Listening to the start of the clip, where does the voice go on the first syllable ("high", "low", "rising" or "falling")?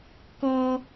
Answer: high